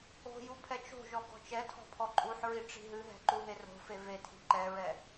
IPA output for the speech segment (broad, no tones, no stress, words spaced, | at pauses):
o̤ jupʰɛt͡ʃo̤ʒɔ ɡɔ̤t͡ʃɛtʰɔ̤ pʰɔǃʼuħɹi ʈ͡ʂi̤ɦɨɦɛ̤ ǃuɦero̤fe vetʰi̤ ǃɛɹɛ